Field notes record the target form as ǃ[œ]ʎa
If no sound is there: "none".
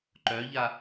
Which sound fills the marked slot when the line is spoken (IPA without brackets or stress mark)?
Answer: œ